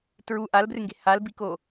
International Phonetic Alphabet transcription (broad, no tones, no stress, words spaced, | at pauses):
tɹu ʔalbrɨŋɡe̤ halbiko